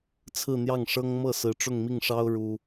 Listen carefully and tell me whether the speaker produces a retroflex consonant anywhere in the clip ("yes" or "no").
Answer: yes